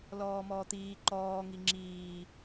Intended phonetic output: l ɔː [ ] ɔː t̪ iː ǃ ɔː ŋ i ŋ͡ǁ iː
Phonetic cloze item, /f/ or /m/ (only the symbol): m